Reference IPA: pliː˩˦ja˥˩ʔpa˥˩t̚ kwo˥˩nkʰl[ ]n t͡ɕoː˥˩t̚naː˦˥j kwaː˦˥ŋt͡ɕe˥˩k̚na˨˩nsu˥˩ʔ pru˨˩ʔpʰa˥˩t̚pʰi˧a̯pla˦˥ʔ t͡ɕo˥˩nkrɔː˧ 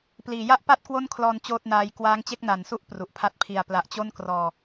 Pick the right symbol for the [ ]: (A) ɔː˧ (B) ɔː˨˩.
A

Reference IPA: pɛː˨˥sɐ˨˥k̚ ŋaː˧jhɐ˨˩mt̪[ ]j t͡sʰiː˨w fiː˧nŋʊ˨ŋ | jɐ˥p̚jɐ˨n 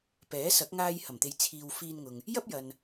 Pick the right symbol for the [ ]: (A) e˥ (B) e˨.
B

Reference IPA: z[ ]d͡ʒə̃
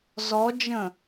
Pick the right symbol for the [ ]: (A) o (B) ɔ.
B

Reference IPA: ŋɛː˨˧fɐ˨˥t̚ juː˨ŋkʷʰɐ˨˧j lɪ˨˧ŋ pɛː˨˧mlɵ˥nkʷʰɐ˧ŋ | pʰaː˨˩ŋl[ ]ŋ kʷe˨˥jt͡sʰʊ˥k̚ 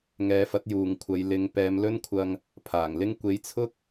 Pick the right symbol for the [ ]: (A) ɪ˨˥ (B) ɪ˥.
B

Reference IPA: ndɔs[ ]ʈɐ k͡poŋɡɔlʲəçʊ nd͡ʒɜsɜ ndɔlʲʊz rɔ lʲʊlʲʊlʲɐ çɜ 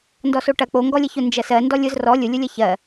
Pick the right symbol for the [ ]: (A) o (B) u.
A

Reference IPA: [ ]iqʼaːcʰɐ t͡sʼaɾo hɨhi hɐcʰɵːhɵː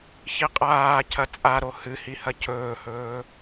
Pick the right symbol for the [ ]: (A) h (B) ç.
B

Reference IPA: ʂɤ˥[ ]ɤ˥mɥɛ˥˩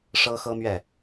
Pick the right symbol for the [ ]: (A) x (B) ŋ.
A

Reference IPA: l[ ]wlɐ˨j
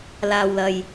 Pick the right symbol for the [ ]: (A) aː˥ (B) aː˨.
B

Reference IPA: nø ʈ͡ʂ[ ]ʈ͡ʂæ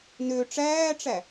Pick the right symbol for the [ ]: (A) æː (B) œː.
A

